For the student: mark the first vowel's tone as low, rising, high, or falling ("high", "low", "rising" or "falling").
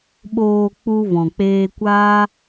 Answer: low